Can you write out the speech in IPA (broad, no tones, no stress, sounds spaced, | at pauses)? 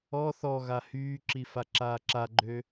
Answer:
ɔ θ ɔ ɣ a h yː ǁ i f a ǁ aː ǁ a ɡ͡ǃ ø